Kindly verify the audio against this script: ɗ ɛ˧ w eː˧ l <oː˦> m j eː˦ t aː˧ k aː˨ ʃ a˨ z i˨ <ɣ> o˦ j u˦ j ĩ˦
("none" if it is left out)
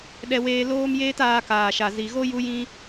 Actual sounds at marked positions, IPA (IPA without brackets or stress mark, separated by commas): oː˦, ɣ